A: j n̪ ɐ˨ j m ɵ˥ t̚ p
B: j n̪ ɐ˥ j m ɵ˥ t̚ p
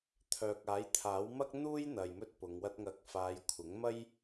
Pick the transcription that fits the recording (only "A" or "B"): A